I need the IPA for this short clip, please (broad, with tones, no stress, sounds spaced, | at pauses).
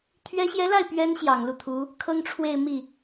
t̪ʰ ɥ ɛ˧˥ ɕ j ɛ˧˥ l a˥˩ ɪ̯ p ɥ ɛ˧˥ n ɕ j ɑ˨˩ ŋ l u˥˩ t̪ʰ u˧˥ | kʰ ɤ˥ ŋ ʈ͡ʂʰ w e˥˧ ɪ̯ m i˥˩